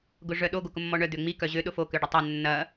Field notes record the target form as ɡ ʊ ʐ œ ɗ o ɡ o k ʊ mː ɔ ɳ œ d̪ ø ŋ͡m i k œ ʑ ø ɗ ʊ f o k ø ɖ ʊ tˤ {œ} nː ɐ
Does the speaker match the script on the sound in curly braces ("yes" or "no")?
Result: yes